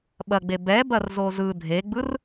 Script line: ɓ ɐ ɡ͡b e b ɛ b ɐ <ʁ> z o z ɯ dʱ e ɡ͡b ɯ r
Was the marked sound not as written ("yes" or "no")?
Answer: yes